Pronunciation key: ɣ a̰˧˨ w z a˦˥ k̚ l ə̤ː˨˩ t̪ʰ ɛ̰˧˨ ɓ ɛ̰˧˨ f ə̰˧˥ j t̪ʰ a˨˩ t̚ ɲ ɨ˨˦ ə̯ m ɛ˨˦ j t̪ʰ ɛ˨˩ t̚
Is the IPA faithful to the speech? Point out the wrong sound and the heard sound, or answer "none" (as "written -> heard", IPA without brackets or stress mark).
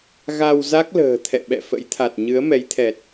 a̰˧˨ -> a˧